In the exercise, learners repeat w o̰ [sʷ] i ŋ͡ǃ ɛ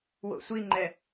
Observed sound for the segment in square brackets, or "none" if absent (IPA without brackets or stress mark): sʷ